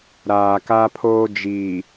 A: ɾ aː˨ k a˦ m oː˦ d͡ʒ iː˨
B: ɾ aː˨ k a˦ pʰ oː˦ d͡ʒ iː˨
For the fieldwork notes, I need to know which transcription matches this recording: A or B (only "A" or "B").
B